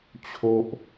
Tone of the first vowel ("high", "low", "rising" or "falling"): low